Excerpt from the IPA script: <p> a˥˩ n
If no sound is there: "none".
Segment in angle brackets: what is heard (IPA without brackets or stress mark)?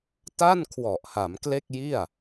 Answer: t